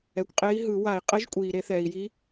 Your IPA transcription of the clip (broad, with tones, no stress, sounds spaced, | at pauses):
ɛ˩ kʷ qʼ e˨˦ i̯ ɦ ɯ˧˩˧ w a˧˩˧ i̯ qʼ ɛ˨˦ ʒ kʷʼ iː˩ ɾ e˧˩˧ θ ɛː˩ i̯ j i˨˦